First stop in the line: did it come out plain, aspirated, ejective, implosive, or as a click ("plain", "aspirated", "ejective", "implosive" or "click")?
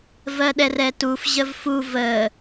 implosive